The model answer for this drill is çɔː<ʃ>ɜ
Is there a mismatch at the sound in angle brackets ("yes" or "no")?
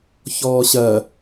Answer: yes